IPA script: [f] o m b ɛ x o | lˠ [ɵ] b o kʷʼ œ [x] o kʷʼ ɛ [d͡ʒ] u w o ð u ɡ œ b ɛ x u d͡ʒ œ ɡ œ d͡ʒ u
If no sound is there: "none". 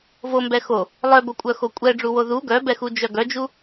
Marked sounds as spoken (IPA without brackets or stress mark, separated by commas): v, œ, x, ɖ͡ʐ